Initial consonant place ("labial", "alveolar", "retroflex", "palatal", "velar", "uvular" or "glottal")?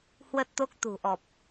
glottal